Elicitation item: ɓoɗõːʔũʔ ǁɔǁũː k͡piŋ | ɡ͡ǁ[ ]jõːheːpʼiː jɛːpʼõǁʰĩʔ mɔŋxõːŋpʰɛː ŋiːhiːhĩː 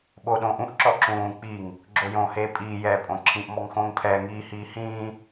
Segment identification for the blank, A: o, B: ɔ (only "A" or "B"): A